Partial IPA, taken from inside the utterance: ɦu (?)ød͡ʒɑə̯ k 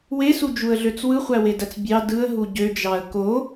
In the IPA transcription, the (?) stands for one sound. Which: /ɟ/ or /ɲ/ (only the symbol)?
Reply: ɟ